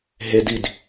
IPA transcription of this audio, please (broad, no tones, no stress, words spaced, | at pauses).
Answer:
ɦed id